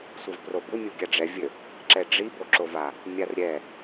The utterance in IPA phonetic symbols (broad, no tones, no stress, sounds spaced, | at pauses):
sʷ ɘ v p r o b u mʲ u ɡʲ a ɖ͡ʐ ɛ vʲ ɘ | ǁ ɛ ɖ͡ʐ i b o ǁ o v a | mʲ a r ɾʲ ɛ